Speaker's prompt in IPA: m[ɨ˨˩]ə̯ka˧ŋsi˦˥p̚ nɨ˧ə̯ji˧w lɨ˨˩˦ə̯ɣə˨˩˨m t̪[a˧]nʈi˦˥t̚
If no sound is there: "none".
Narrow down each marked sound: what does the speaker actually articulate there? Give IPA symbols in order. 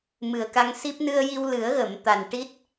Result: ɨ˨˩, a˨˩

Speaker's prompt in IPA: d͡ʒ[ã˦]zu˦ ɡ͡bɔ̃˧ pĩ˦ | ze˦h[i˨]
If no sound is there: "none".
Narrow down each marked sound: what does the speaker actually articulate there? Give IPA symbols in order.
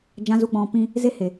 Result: ã˦, e˨

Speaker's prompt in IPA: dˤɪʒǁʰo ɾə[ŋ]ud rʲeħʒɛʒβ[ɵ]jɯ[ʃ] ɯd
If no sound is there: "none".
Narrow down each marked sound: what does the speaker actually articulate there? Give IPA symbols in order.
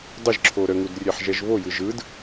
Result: ŋ, o, ʒ

